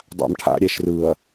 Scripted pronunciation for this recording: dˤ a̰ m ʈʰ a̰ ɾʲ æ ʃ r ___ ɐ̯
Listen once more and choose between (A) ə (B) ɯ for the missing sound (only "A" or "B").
B